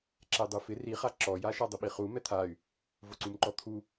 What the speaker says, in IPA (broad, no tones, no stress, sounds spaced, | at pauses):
ǁ ɛ dˤ u f ɪ r i χ a ǁ ɔ j a ʃ a dˤ ʊ ɓ i χ u m ɛ t̪ʰ a y̯ | v ʊ ǀ u m ǃ ɔ t̪ʰ u